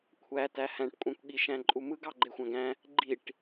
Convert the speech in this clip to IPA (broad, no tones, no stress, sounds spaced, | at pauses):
kʷʰ æ t æ h æ̃ ʈ kʷʼ æ̃ kʷ ɠ i ʃ æ̃ ǃʼ u m ɯ ɡ ɑ ɡ͡ǃ e xʷ æ̃ ɡ æ̃ | ɡ͡ǃ i ʈ